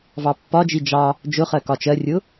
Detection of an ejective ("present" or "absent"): absent